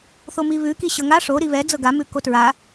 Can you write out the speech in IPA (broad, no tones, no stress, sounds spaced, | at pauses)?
θ o m i β ʉ k i ɕ ɤ ŋ a ʂ o ɾ i β ɛ d͡z ɤ ɡ a m ʉ k o t ɹ a